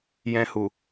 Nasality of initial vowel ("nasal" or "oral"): nasal